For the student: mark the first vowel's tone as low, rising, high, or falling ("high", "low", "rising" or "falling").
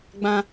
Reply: high